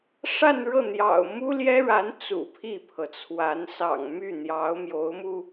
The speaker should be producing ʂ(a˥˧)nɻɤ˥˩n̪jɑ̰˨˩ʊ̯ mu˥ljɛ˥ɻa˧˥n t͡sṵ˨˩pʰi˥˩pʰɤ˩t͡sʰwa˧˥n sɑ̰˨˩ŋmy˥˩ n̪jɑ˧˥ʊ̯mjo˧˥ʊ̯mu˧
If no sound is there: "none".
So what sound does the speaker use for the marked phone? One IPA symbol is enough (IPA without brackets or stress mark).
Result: a˥˧